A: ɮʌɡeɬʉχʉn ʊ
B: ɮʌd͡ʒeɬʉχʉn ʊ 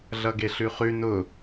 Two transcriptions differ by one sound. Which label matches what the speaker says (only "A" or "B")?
A